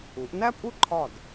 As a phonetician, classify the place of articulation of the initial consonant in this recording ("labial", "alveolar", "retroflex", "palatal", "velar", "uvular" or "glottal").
glottal